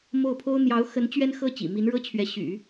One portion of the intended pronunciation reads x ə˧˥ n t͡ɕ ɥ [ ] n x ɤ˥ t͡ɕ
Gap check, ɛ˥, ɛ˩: ɛ˥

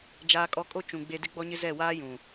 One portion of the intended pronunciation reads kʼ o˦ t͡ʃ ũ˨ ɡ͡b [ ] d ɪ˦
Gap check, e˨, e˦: e˨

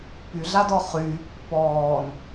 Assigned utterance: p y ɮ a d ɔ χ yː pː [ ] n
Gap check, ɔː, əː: ɔː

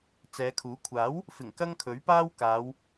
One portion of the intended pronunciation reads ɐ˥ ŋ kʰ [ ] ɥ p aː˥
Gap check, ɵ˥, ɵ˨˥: ɵ˨˥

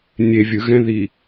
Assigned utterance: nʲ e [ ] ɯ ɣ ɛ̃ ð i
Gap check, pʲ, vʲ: vʲ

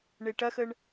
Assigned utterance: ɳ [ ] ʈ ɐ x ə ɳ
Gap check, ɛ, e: e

